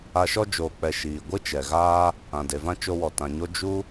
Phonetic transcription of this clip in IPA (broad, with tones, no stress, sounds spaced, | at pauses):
a˧ ʃ ɔ˦ d͡ʒ oː˨ k͡p ɛ˨ ʃ iː˨ ɡʷ ɨ˦ t͡ʃ ɛ˨ ɣ aː˦ | ã˨ d e˨ v ã˦ t͡ʃ o˧ w ɔ˨ t ã˨ ɲ o˦ d͡ʒ u˦